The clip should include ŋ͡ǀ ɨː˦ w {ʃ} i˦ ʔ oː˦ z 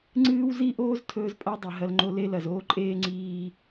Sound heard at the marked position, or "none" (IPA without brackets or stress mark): z